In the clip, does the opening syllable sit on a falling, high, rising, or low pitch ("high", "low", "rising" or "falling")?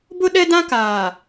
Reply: high